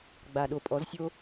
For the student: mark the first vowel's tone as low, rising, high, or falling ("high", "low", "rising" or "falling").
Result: low